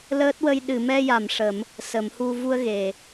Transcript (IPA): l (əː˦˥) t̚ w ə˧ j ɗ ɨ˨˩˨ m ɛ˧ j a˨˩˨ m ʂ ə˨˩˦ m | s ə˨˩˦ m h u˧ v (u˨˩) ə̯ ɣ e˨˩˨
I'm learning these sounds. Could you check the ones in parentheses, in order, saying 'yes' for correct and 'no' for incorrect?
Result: yes, no

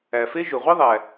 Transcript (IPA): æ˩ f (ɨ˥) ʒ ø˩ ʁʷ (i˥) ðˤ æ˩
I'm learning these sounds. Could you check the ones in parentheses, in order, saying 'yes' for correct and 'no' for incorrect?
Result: no, yes

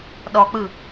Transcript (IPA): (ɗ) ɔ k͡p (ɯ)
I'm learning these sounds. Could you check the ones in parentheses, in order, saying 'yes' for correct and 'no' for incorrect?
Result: yes, yes

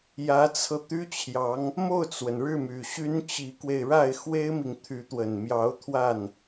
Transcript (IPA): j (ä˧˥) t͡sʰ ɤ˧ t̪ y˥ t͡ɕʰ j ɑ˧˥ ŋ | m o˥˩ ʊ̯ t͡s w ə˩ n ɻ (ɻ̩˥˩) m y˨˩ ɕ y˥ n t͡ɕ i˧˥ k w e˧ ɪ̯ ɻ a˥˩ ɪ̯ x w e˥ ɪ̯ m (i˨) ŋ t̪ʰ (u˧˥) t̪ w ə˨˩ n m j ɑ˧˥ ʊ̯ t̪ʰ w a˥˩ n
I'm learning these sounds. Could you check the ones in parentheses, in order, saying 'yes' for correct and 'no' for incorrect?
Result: yes, yes, yes, no

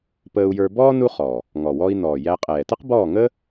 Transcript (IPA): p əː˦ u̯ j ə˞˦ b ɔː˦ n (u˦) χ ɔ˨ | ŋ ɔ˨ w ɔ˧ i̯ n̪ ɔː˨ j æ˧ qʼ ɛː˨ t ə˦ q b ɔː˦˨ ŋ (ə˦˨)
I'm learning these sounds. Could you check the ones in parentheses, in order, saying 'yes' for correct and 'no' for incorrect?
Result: yes, no

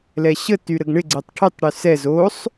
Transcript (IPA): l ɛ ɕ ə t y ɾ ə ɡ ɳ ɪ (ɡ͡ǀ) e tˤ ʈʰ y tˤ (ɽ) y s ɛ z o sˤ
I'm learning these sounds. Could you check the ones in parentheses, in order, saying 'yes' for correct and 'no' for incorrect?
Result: yes, yes

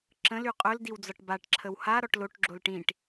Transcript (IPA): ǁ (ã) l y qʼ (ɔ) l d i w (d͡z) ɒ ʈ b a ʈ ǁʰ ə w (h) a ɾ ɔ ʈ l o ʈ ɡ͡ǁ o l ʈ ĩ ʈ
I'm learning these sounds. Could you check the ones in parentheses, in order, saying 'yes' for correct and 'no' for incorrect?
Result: no, no, yes, yes

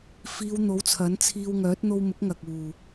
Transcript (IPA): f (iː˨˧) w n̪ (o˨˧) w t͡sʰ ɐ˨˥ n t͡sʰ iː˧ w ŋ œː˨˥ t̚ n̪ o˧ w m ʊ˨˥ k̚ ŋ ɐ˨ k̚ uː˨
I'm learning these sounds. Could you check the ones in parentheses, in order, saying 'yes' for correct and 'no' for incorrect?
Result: yes, no

